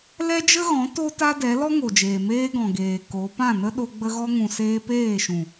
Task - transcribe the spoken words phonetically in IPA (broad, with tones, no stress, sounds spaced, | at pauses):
l ɛ˦ d͡ʒ ə˦ ɣ ɔ̃˨˦ t o˦ t a˦ d ɛ˨˦ l ɔ˦ ŋ o˨ d͡ʒ eː˨ m eː˦ ɡ ɔ̃˨ ɡ eː˨ k o˨˦ p ã˦˨ n ə˦ ɗ o˧ ɡ͡b ə˧ ɣ ɔ˧ ŋ ũ˨ s eː˧ p eː˦˨ ʃ ũ˨